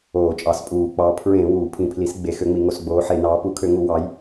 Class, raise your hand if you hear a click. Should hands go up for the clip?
no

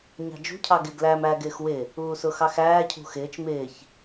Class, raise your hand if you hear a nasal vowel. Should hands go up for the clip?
no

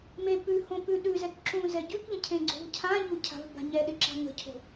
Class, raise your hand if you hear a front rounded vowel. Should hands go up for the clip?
no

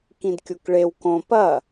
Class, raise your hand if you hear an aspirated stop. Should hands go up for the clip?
no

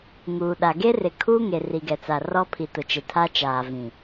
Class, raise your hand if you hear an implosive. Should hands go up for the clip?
yes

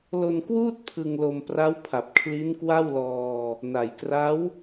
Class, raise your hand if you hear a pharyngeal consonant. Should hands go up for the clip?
no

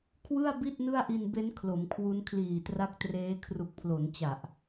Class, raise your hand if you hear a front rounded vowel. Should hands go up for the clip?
no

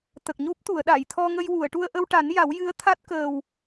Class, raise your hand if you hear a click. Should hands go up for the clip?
no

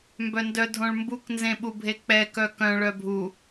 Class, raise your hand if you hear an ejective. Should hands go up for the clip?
no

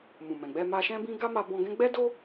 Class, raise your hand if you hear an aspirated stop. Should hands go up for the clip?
no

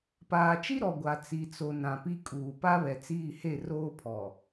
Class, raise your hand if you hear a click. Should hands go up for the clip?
no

